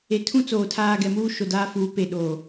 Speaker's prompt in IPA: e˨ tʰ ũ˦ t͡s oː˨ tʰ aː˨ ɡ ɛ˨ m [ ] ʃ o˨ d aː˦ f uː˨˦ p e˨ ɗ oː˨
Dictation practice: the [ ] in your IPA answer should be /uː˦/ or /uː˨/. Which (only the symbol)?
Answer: uː˦